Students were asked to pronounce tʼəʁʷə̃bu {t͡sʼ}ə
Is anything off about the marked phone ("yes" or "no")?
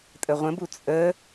no